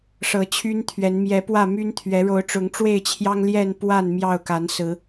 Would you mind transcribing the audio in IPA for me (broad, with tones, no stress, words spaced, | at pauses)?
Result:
ʂɤ˨˦t͡ɕʰy˦nt̪ʰɥɛ˨˦n mjɛ˨˦pwä˥˨my˦nt̪ʰɥɛ˨˦ ɻo˨˦ʊ̯ʈ͡ʂʊ˨˦ŋʈ͡ʂwe˥˨ɪ̯t͡ɕʰjɑ˦ŋ ljɛ˥˨npwa˥˨n mjɑ˥˨ʊ̯ka˨˦nsɹ̩˨˦